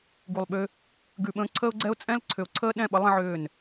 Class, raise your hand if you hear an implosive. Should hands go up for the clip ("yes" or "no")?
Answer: yes